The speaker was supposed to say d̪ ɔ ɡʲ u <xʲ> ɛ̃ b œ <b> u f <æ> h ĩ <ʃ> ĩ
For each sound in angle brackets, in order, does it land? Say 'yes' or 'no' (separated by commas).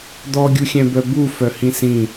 yes, yes, no, no